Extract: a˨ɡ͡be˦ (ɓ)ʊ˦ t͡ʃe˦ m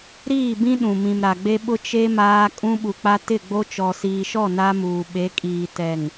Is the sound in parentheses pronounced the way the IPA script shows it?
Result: yes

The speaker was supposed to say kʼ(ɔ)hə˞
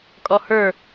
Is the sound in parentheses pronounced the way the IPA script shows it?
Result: yes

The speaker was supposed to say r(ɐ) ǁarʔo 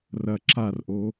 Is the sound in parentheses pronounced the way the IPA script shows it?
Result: yes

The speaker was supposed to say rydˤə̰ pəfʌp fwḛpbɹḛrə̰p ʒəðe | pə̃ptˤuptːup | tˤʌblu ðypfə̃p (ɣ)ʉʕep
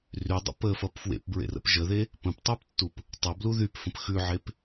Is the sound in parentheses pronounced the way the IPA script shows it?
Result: no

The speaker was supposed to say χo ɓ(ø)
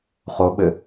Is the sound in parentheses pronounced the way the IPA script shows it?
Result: no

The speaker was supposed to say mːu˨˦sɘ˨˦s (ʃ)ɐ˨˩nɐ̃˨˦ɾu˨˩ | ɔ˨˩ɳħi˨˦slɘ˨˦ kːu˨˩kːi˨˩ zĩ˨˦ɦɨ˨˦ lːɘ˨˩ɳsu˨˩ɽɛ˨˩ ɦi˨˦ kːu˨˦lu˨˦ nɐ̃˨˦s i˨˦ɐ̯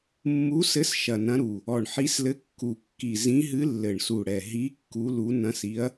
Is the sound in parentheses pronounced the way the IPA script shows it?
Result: yes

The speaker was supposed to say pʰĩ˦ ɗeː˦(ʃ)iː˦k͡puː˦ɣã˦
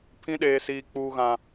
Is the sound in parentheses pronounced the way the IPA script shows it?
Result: no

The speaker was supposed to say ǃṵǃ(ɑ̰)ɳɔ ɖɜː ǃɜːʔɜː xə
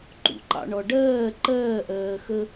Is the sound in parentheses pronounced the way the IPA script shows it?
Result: yes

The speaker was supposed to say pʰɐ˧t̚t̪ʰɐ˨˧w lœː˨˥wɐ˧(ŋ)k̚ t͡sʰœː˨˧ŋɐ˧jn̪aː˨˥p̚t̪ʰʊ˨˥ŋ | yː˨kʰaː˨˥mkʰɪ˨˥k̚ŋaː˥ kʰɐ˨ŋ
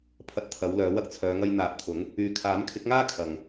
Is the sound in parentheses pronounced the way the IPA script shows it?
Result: no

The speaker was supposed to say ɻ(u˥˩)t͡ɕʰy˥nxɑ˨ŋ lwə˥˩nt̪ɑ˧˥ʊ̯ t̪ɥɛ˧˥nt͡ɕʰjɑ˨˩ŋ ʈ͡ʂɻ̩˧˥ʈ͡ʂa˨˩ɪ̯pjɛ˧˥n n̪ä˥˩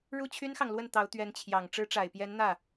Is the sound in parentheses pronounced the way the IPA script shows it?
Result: yes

